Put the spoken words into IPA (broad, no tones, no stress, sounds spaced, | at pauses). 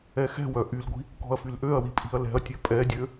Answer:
ɛ x ɛ̤ w œ ʔ y l ɡʷ i̤ | k ɔ̤ ɐ̯ f y l ʔ ø ɐ̯ w i pʼ i̤ ɐ̯ l ɛ̤ ɐ̯ tʲ ø pʼ ɛ dʲ ø